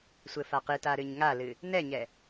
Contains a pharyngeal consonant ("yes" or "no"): no